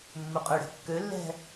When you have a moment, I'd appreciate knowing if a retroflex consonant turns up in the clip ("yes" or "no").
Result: yes